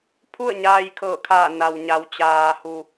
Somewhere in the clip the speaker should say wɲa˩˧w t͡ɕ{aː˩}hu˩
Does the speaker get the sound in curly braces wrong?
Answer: no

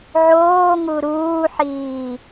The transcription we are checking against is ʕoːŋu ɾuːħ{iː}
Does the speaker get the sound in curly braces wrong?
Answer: no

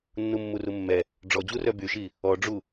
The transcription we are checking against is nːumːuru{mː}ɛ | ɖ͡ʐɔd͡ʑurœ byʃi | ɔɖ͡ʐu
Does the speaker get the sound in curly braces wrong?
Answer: no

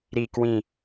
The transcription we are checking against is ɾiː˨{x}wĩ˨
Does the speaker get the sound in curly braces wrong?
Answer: yes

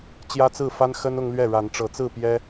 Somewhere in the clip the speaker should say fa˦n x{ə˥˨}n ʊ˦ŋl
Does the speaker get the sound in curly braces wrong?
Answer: yes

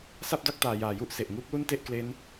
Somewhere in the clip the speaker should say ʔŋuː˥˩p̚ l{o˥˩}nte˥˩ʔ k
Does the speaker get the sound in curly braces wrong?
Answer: yes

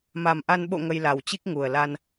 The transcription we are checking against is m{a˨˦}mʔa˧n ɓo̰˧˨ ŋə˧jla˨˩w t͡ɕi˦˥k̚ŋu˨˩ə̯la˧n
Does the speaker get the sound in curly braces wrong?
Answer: yes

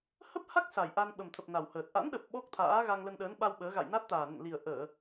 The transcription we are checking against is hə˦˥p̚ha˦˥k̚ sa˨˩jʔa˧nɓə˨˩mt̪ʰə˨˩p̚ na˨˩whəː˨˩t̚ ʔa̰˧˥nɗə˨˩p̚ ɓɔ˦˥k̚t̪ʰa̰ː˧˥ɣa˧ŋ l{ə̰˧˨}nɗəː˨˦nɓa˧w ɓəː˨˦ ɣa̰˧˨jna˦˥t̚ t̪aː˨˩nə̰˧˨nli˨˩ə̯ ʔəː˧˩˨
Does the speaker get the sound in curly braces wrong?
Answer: yes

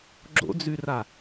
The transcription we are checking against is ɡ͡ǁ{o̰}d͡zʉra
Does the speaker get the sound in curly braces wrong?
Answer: no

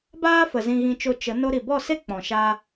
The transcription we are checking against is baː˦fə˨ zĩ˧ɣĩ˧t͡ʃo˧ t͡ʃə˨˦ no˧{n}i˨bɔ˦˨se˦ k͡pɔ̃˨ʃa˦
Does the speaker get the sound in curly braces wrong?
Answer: yes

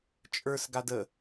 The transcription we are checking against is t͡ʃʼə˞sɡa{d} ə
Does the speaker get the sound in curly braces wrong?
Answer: no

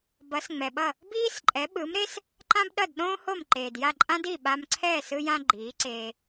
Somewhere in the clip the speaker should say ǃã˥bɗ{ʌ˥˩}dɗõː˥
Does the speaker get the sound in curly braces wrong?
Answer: no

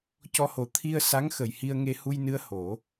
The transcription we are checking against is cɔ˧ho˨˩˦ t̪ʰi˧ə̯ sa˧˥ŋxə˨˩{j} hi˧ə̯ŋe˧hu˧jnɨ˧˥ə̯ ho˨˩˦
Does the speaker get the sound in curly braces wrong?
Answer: no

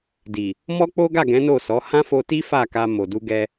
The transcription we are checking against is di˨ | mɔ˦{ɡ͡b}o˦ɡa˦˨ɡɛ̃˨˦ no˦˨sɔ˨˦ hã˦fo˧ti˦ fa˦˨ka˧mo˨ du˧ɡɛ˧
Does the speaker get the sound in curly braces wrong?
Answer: yes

